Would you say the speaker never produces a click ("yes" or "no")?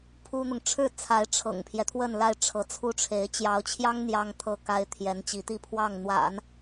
yes